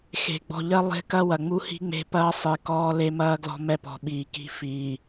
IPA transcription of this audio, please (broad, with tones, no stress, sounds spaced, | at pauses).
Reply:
x e̤˨ ɡ͡b ɔ̤˨ ʎ ɜ˦ lˠ e̤˦ k ɐ˦ w ɐ˨ ŋ͡m u˦ h i̤˦ ŋ͡m e̤˦ p ɐː˦ sˤ i˨ k ɔː˦ l e˦ m ɐː˦ ɡ l ɔ̤˦ m ɛ˦ p ɔ̤˨ ɓ iː˨ k i̤˦ f iː˨